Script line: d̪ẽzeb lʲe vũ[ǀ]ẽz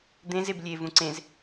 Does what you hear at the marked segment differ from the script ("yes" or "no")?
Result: no